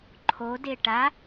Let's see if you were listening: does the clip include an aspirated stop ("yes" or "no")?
yes